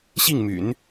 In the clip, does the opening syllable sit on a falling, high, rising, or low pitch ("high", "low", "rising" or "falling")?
falling